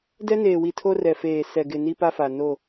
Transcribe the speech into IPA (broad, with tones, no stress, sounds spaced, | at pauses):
d ɛ˦ n eː˨ w i˨ tʰ o˦ r ɛ˨ f eː˨ s ɛ˨ ɡ ɪ˨ n i˦ p a˦ f a˨ n o˦˨